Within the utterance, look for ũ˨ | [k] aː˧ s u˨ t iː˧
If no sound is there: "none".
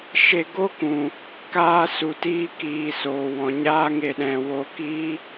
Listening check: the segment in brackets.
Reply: k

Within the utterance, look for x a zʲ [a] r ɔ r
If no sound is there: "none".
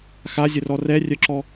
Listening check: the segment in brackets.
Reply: ə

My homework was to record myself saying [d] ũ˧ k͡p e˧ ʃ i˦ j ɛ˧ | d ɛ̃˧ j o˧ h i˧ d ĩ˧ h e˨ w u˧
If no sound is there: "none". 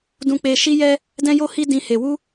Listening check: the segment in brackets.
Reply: d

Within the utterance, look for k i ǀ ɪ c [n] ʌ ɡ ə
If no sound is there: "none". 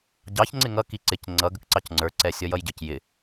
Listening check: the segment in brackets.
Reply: ŋ͡ǀ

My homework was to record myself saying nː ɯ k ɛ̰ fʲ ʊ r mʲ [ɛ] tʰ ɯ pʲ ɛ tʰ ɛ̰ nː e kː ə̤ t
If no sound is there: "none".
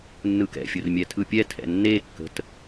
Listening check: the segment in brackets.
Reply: ɛ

